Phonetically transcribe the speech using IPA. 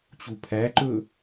t͡ɕ u pʰ æ ǃ ɵ

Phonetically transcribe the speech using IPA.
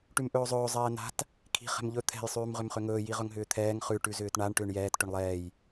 ʈ ʉ m ʔ ɵː zˤ ɵː zˤ ɛː n a̤ t | kʰ i̤ χ ɛ̤ m ʎ ɵ t̪ʰ ɛ̤ j sˤ ʉː m ʁ ʏ m χ ʏ ŋ ɵː j i ʁ ɵ ŋ ɦ ʏː t̪ʰ ɛː ŋ χ ʉ ʈ ʉ z ʏː t ɳ a ɳ ʈ ʏː ɳ j ɛː t ʈ ʏ ɳ lˠ ɛː j

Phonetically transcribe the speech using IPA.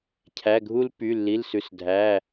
cʰ æ˩˧˩ ɡʱ u˦ l p y˩˧˩ lː i˩˧˩ l s ʉ˩˧˩ s dʱ æ˩˧˩

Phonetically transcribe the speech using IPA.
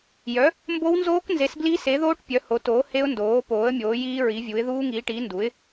j œ˨˥ | m b o˦˥ w n z oː˦˥ k n z e˨˥ s b l i˦˥ s e˨˥ ð oː˦˥ ʈ pʲ œ˨˥ h o˨˥ t oː˨˥ h e˦˥ ʊ̯ n d oː˨˥ p oː˨˥ ə̯ mʲ oː˨˥ j iː˦˥ ɹ i˨˥ vʲ u˨˥ ɪ̯ ð uː˦˥ ŋ iː˨˥ ʈ iː˨˥ n d u˨˥ ɪ̯

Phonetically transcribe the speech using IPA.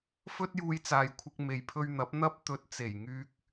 f ɵ˥ t̚ j uː˧ j t͡s aː˨ j kʷʰ ɪ˧ k̚ m e˨ j pʰ ɵ˧ ɥ n̪ ɐ˨˥ p̚ n̪ ɐ˥ p̚ t̪ ɵ˨ t̚ t͡s e˨˩ j ŋ yː˨ k̚

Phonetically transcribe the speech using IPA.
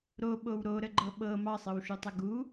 ɾ o ɓ o w ɾ o ɾ ə ɡ͡ǃ ɤ ɓ ɤ m ɑ sˤ ɤ w ʃ u tˤ ə ɡ u

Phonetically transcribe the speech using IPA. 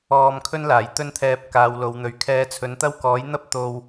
ɔː˧ m kʰ ɵ˥ n l aː˨˩ j t̪ ɵ˥ n t̪ʰ ɛː˧ p̚ k aː˨˧ w l o˨˧ w n̪ ɵ˨˧ ɥ kʰ ɛː˧ t͡sʰ ɵ˨˥ n t̪ ɐ˥ w k ɔː˨˥ j n̪ ɐ˥ p̚ t̪ o˧ w

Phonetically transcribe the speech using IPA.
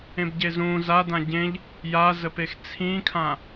ẽ b ɟ e z ũ z a d ã ɟ ẽ ʎ | j a z ə p e x t͡sʰ ĩ kʰ ã

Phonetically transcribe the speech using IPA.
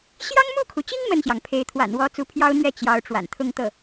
ɕ j ɑ˥ ŋ m u˥˩ kʰ u˩ t͡ɕ i˥ ŋ m ə˥˩ n ɕ j ɑ˩ ŋ pʰ e˧˥ ɪ̯ t̪ʰ w a̰˨˩ n w ɔ˧˥ t͡s u˧˥ pʰ j ɑ˥ ʊ̯ n̪ ɥ ɛ˥˩ t͡ɕ j ɑ˧˥ ʊ̯ ʈ͡ʂ w a̰˨˩ n t̪ʰ ʊ˥˧ ŋ t̪ ɤ˥˩

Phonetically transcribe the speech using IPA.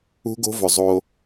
ṳ˦ ɡ o̤˦ v ɵ˨ zˤ o˦

